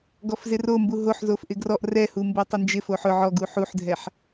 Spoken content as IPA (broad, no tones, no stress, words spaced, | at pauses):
ɡɔfzɪrombu ɦoħzof ʔɪɡrɔʔ rɛhumbo tˤɪnd͡ʒɪ foħʊ ʕɔ ɡuħuħdʱɛħ